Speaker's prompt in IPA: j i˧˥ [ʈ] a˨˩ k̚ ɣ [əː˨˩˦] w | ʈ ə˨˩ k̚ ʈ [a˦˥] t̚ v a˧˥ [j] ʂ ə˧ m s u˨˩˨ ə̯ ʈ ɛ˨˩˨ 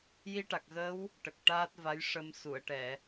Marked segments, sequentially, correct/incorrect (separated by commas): correct, incorrect, incorrect, correct